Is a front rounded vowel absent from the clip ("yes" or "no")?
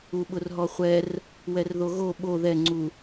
yes